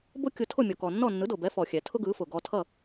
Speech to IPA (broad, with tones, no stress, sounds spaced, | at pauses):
b ʊ˥ kʲ ʊ˧ tʰ ʊ˥˩ mʲ ɔ˩ k ɔ˩ nː ɔ˥˩ nː ɯ˩˥ d ʊ˩ b ɛ˩˥ f ɔ˩ xʲ ɛ˩ tʰ ʊ˥ ɡ ɯ˩˥ f ʊ˩ ɡ ɔ˧ tʰ ʌ˥˩